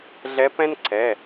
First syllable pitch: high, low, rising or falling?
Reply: rising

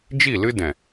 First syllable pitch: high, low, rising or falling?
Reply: falling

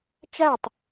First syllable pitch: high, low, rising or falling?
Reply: falling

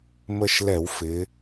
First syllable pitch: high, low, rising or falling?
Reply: falling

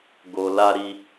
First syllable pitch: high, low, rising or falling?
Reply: low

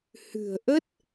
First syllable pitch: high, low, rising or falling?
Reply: low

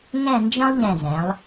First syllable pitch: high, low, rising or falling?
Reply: falling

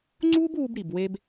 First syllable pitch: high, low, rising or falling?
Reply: high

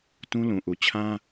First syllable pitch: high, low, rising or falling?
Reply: high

